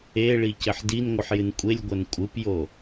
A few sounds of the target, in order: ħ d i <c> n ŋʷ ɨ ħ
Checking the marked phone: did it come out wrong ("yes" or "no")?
yes